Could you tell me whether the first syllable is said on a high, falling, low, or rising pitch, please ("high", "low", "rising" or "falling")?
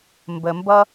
low